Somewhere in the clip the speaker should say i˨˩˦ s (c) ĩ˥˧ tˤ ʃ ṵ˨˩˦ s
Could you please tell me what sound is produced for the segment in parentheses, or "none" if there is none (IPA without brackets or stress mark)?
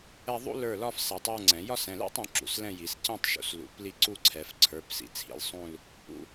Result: c